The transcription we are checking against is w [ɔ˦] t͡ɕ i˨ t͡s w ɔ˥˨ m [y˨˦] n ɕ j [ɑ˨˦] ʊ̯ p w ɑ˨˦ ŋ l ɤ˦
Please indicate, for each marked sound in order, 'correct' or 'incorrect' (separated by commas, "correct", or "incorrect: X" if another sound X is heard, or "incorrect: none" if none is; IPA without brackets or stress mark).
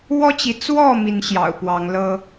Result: correct, incorrect: i˨˦, incorrect: ɑ̰˨˩